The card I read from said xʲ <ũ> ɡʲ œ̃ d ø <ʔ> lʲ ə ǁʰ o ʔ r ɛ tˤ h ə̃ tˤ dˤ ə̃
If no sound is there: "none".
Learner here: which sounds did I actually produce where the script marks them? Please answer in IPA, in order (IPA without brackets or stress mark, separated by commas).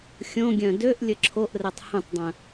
õ, ʔ